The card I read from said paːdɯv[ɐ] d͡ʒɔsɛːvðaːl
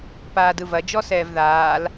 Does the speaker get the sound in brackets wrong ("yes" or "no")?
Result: no